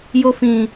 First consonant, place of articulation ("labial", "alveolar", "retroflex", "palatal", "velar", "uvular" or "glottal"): palatal